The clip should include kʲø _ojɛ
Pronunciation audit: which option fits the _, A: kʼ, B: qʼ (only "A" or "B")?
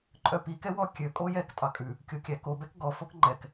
A